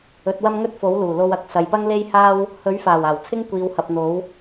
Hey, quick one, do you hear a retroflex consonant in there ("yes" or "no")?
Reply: no